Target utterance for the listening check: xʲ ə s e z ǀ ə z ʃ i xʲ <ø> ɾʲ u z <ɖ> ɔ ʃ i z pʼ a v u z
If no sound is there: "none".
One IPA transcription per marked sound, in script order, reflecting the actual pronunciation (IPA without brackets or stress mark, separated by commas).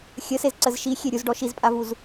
e, ɖ